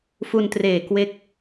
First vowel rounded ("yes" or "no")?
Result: yes